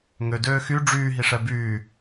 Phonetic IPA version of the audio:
ŋ ø d øː x y ɖ͡ʐ yː ɦ i ʂ ɛ b yː

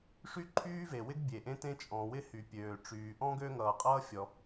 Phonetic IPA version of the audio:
ʂ y˥ ǃʰ yː˥ v e˩ w ɪ˥ ɡ bʲ e˩ ʔ ẽ˥ t ẽ˥ t͡ʃʼ ɔ̃˩ w ɪ˥ h y˩ pʲ øː˩ ʈ͡ʂ yː˩ ʔ ɔ̃˥ ɡ ø˥ ŋ ʌː˩ qʼ ʌː˥ fʲ ɔ˩

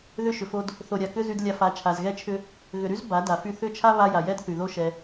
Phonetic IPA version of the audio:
ð ʏ˧ ʃ ʏ˨ f o˧ d | θ o˨ ɾʲ a˨ k ʏ˦ z y˧ d lʲ a˧ f a˨˦ t͡ʃʰ a˨ z ɣ ɛ˦ t͡ʃʰ ʏ˦ | ɣ ʏ˨ ɾ y˦ z b a˨˦ d a˨ f y˦˨ θ ʏ˦˨ t͡ʃʰ a˦ β a˧ j a˨ j ɛ˦ d θ y˨ ð o˦ ʃ ɛ˧

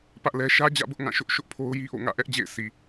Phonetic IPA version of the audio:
p ä˦ ʔ l ɛ˦ ʃ ä˦ d͡ʑ ä̰˦˨ b ʊ˦ ʔ ŋ ã˦˨ ʃ ʊ˦ ʔ ʃ ʊ˦ ʔ pʰ o˦ ʊ̯ j i˦ ʔ o̰˦˨ ŋ ä̰˦˨ ʔ ɛ˦ ʔ d͡ʑ ḛ˦˨ ɪ̯ s i˨

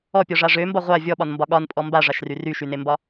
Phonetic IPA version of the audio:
ɔ pʲ ɔ ʐ a ʐ ø m b ɒ ʁʷ a vʲ ɔ ɓ ɒ n m b ɒ ɠ ɒ n pʼ ɔ m b a ʐ a ʃ r y r y ʃ y n e m b ɒ

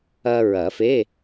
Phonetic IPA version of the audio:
ɐ˧ ɹ ɐ˨˩˦ f e˧˥˧

